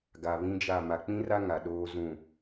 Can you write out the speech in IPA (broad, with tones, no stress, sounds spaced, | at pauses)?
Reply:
ɡ a˨ β ĩ˦ d͡ʒ a˦˨ m a˨ k͡p ĩ˦ r a˦ ŋ a˨ ɗ oː˦ z ũ˦˨